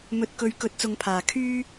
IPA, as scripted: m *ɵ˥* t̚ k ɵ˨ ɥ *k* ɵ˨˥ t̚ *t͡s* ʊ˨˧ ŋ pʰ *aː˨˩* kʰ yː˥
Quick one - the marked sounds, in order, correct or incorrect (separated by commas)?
incorrect, correct, correct, correct